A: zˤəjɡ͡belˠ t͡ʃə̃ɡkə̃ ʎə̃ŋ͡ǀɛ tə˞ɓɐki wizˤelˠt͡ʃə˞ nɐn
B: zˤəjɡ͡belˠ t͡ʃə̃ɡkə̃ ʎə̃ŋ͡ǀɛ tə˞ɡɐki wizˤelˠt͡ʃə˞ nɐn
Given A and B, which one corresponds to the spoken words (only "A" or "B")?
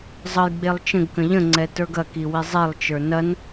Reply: B